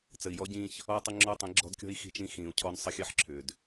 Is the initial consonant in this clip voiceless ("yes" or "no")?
yes